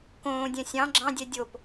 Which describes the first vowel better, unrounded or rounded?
rounded